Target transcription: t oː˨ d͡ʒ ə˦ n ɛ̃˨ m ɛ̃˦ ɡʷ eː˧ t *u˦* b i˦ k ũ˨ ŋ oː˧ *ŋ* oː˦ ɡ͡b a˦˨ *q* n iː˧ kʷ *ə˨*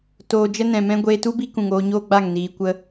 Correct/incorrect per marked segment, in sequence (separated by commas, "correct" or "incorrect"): correct, incorrect, incorrect, incorrect